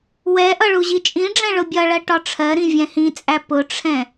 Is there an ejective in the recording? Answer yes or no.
yes